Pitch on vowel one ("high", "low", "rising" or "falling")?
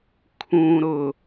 low